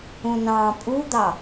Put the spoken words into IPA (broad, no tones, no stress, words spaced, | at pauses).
ũnɑ̃ːpʼud̪ɑ